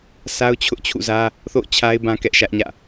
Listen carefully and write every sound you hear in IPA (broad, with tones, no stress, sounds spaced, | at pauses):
sʰ a˦ ʊ̯ t͡ɕʰ ʊ˦ ʔ t͡ɕʰ ṵ˦˨ z ä˦ | θ o̰˦˨ ʊ̯ t͡ɕʰ a˦ ɪ̯ b ã˦ k ɛ˦ ʔ ʃ ä˦ ʔ ɲ ä̰˦˨